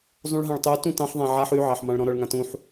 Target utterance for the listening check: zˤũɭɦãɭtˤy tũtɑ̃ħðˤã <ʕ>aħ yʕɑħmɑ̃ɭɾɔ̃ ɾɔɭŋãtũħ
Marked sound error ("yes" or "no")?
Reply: no